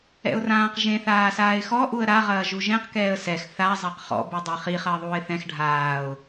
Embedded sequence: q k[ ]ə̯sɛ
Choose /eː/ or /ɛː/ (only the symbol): ɛː